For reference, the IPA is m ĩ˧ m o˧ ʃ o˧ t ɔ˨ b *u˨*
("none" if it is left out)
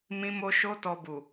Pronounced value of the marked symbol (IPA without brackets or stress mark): u˨